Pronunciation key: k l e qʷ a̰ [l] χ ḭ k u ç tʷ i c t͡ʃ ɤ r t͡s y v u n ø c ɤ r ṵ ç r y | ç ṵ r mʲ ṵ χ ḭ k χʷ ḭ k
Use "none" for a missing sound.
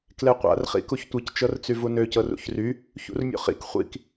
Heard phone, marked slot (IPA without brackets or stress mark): r